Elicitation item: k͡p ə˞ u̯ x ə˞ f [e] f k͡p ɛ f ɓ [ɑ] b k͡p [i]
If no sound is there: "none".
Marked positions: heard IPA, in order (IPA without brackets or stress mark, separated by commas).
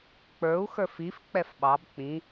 i, ɑ, ĩ